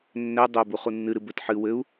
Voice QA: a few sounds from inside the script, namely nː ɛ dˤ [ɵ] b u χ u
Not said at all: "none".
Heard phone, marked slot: œ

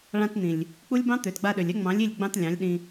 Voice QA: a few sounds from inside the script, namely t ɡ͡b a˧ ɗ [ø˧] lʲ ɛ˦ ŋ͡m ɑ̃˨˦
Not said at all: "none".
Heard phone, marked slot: ø˨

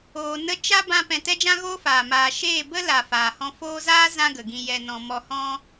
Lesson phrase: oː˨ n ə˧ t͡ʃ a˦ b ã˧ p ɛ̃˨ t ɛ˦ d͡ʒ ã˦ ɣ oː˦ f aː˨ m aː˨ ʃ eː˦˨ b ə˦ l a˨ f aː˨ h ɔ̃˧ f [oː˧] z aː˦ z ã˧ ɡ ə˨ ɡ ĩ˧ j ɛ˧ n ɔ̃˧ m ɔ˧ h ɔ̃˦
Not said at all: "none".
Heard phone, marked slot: oː˧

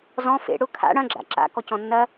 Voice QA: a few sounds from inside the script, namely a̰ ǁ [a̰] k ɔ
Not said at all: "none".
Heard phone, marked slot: a̰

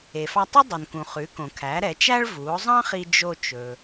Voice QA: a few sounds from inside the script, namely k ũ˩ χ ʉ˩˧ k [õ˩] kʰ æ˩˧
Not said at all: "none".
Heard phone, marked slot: õ˩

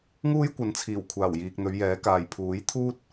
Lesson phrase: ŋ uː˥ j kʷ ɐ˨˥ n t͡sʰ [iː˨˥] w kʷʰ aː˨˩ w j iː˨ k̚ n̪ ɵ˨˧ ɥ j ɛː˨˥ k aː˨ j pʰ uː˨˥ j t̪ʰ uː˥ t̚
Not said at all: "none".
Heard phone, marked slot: iː˨˩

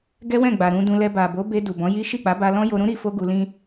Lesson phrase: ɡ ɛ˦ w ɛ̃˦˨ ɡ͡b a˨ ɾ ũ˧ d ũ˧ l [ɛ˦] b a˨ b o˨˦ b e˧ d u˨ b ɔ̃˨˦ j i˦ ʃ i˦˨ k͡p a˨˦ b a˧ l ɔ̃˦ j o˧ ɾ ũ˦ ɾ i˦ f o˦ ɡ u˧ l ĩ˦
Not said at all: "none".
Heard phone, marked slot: ɛ˧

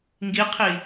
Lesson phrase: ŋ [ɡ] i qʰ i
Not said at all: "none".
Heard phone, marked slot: ɡ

